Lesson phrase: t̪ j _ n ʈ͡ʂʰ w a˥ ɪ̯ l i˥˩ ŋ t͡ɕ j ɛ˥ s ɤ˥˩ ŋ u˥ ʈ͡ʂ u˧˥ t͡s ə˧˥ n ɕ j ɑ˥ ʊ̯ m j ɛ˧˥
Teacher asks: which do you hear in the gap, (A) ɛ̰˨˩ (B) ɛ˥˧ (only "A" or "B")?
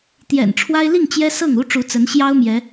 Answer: A